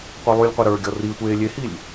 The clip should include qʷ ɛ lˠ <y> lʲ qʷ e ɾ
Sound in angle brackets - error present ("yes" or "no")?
no